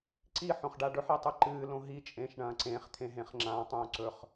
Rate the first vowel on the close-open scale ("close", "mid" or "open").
close